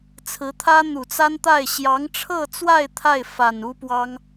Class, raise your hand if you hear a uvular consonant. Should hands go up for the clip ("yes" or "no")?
no